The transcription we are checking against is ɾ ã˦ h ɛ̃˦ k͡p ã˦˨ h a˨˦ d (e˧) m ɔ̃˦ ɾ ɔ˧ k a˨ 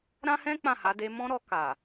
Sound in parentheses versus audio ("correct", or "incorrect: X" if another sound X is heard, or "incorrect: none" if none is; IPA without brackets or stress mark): correct